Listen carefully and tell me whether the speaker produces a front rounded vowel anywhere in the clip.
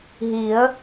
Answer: no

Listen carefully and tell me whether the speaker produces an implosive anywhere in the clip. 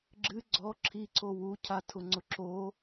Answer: no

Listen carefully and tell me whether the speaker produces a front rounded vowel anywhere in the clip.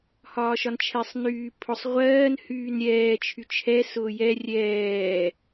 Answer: yes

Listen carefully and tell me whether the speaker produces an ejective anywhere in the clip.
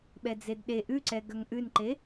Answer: no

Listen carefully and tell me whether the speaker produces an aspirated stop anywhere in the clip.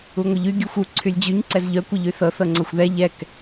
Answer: yes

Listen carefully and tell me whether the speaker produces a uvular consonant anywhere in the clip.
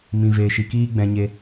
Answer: no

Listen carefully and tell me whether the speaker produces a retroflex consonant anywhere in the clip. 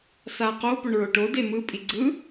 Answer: yes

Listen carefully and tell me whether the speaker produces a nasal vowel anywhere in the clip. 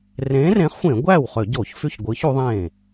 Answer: yes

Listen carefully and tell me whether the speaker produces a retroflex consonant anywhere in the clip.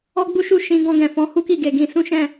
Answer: no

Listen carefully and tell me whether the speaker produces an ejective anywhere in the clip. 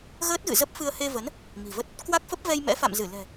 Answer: no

